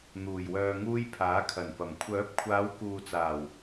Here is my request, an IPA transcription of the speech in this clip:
n̪uː˨˩jwœː˧ŋuː˥j pʰaː˨˥kʰɐ˨˩npɐ˨˩m kʷʰœː˨˥p̚kʷʰaː˨˧wkuː˨t͡saː˨˩w

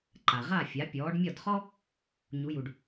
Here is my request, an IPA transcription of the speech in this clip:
ǃa˩ʁa˥˩ fʲa˩˥ pʲɔː˩˥ɖmʲɒ˥˩dχɔ˥ | ɲu˩˥ju˩ɖ

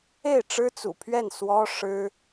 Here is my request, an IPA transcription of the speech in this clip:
e˥˩ɪ̯ʈ͡ʂɻ̩˥t͡sṵ˨˩pʰɥɛ˥˩n swɔ˥ʂɻ̩˥

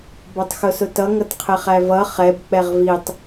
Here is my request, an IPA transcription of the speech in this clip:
bɔtˤxʊsʊtʌ ŋʌtqʰɪχævʌ χɛb k͡pɛʁvitˤ

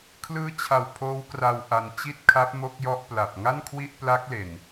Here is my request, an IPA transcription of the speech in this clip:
kʰlɯː˦˥t͡ɕʰa˨˩w pʰoː˦˥wkra˧w ʔa˧n t͡ɕi˥˩t̚kʰa˦˥p̚ mo˥˩k̚jɔ˥˩ʔpla˨˩p̚ ŋa˥˩nkʰwi˥˩ʔpla˦˥k̚le˨˩n

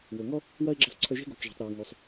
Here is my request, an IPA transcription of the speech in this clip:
wo˩ŋɔ˥ | wɐ˥ɪ̯ɡ͡ǁɐ˧sˤǀʰɵ˧ʒe̤˥ ɡo˩kʒe̤˩tˤɾe˩w ŋo˩sˤ

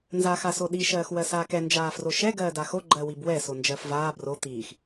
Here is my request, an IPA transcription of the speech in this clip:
nzaːxasoɗi ʃɜːxwɜsaːkɛ nd͡ʒaːfroʃɛ ɡɜːdaxo ɡ͡ǃɜwibwɛ sond͡ʒɜfvaː bro t̪iːx

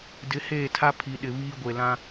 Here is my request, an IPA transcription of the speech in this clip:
dɪ˨˦heː˦˨tʰa˦ pʰi˨ɗɪ˨ βiː˦ ɡʷe˨lã˦

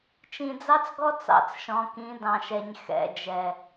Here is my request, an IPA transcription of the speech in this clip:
t͡ʃĩ˨d͡zɑ˦t͡sɡɔ˦ t͡sɑ̰˦t͡sʃɔ̃˨kĩ˨˦ dɑ̃˨ʃɛ˨ɲ xɛ̰˦˨d͡ʒɛ˨

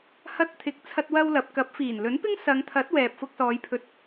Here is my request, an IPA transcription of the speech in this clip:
hɐ˥t̚t̪ʰɪ˧k̚ t͡sʰɐ˥t̚wɐ˥wlɐ˨˥p̚ kɐ˨˥p̚fiː˨˩n lɵ˨˥npɪ˥ŋ sɐ˨˧ŋt̪ʰɐ˨˥t̚ wɛː˨p̚fʊ˧k̚sɔː˨˧j pʰɵ˨t̚

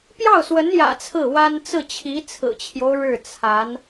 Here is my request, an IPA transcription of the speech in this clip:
pjɑ˥˩ʊ̯swə˧˥njä̰˨˩ t͡sʰɹ̩˥˩wa˥n t͡sɹ̩˥˩t͡ɕʰi˧˥t͡sʰɹ̩˨˩t͡ɕʰjo˦ʊ̯ ɻɻ̩˥˩ t͡sʰa˧˥n

